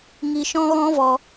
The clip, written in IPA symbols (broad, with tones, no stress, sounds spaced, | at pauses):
ŋ i˧ ʃ ɔ̃˦ ɣ ɔ̃˦ v ɔ˧